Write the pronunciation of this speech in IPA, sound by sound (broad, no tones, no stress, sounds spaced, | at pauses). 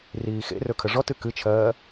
r iː x ḛ r ɵ kʰ ə ʐ ɔ t ɨ k ɨ t͡ʃʰ ɜː